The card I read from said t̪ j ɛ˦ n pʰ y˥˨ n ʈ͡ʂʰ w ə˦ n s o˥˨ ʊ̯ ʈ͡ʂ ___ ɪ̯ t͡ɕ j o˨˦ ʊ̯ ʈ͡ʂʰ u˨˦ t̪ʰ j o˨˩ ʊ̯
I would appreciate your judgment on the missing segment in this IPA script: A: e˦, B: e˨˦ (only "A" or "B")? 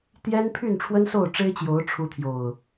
A